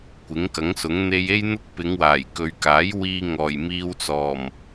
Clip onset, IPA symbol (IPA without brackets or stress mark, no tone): kʷ